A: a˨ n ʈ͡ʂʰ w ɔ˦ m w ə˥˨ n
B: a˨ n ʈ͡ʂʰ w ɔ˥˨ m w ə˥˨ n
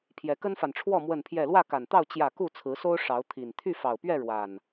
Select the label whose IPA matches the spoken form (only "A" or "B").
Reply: B